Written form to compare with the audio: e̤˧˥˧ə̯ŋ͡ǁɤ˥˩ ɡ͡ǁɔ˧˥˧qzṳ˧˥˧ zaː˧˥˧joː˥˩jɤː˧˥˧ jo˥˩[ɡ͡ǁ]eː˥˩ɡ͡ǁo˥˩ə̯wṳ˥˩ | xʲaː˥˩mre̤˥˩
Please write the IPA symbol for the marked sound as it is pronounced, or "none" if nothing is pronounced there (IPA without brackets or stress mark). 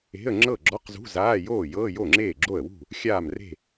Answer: ŋ͡ǁ